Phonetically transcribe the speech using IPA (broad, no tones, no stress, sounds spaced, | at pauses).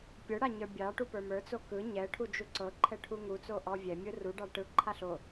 pʲ ə˞ ɽ a ɲ ə˞ bʲ ɑ ʈ u p ə˞ m ə˞ t͡s o k ɯ ɲ ɛ ʈʰ u d͡ʒ u ǀ ɤ ǃʰ ɛ ʈʰ u ŋ u t͡s o ʔ ɔ vʲ ɛ mʲ ɯ r u ɖ ɑ ʈ ɯ ǃʰ a ɬ o